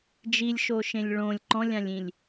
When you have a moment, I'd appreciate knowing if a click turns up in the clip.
yes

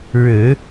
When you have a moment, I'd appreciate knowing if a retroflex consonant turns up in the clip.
yes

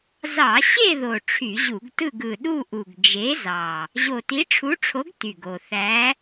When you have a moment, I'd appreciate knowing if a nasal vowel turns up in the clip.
no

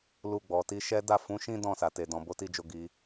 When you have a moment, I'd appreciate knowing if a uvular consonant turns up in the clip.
no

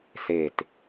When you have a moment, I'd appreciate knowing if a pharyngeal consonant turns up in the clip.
no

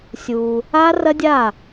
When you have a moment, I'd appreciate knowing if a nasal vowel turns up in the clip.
no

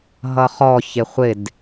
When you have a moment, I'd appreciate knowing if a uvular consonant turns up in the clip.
yes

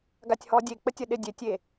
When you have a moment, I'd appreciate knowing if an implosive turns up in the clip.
yes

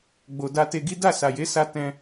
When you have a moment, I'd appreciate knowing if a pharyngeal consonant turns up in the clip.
no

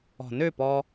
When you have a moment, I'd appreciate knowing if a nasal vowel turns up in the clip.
no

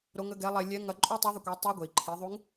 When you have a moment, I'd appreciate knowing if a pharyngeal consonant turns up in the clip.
no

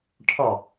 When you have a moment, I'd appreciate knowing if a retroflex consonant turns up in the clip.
yes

